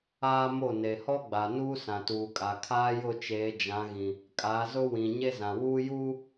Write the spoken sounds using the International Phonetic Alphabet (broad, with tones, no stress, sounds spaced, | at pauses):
aː˦ m o˦˨ n e˨ h ɔ˦ ɡ͡b a˨ n uː˦ s ã˨ t uː˨ kʼ a˨ kʰ aː˦ j ʊ˦˨ t͡ʃ eː˨˦ d͡ʒ ã˨˦ ɣ ĩ˨ | kʼ a˨˦ z ʊ˦ w ĩ˨ ɲ e˦ z ã˨ w uː˦ j uː˦